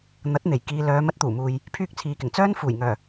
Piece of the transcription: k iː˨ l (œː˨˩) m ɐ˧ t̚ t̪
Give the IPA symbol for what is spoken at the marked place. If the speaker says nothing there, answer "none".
œː˨˧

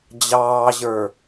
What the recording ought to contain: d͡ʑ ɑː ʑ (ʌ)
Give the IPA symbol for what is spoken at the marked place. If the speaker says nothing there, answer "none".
ə˞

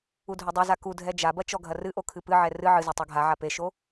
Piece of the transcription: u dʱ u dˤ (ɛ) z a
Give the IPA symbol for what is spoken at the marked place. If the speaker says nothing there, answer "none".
e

